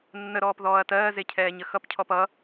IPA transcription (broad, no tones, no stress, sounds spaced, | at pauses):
nː ə ɾ ɔː p ð ɔː ɐ̯ t ɜː z e cʰ ɛː ɲ ə x ʌ p cʰ ɔ p ʌ